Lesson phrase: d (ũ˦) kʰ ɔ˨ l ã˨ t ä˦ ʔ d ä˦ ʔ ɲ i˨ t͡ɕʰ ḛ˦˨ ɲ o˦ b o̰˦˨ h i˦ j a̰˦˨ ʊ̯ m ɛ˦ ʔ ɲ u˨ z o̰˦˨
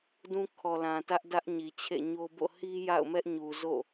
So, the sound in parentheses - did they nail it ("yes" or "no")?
yes